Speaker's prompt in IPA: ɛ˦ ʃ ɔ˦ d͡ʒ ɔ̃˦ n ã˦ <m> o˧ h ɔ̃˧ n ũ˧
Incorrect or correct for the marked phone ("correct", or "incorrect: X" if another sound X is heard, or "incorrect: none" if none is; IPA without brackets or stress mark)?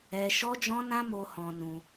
correct